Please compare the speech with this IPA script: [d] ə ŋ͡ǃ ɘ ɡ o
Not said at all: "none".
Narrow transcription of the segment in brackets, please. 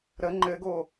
ɾ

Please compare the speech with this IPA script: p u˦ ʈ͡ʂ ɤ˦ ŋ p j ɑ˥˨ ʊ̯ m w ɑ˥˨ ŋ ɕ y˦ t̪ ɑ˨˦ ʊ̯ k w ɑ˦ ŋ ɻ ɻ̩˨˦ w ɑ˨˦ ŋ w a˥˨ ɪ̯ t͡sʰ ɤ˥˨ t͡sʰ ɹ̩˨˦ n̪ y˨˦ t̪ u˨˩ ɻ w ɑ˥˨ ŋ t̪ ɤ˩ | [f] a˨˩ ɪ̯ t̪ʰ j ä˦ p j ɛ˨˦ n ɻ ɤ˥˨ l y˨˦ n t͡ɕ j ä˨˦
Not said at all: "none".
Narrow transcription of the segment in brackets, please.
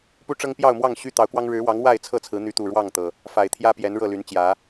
f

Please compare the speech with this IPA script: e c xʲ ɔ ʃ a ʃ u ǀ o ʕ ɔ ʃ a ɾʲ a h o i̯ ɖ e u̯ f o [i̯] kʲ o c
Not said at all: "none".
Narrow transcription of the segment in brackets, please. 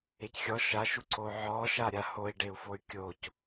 y̯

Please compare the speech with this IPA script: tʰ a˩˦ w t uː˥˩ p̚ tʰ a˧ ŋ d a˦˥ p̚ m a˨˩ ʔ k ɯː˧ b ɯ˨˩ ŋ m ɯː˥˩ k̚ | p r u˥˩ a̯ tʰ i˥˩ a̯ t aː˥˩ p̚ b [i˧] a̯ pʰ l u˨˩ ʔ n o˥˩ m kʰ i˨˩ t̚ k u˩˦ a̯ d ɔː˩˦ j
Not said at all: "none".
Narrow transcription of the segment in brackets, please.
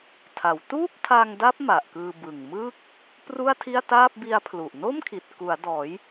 i˦˥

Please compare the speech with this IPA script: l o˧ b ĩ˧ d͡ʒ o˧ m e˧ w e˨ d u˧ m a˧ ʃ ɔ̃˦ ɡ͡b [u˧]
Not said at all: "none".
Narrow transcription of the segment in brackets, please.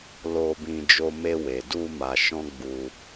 u˧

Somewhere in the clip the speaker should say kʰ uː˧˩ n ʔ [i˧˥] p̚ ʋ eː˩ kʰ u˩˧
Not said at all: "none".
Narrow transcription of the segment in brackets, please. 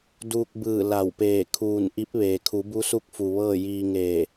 i˧˥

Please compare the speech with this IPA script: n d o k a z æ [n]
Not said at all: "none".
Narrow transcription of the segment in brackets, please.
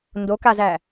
none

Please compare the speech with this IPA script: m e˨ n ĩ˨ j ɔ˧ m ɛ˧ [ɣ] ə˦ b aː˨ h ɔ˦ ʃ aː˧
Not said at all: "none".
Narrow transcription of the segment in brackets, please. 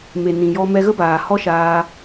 ɣ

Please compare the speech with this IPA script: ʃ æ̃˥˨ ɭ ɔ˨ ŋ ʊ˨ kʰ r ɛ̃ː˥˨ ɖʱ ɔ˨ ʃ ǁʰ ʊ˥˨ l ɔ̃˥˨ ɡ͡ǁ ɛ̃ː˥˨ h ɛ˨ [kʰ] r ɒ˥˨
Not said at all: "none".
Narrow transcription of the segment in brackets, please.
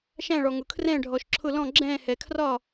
kʰ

